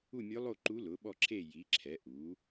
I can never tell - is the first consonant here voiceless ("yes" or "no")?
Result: no